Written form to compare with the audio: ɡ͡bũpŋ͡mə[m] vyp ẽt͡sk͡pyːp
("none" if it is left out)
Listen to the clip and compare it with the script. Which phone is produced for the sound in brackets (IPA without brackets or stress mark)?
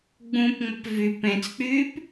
p